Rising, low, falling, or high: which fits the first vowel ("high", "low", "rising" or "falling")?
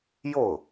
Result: falling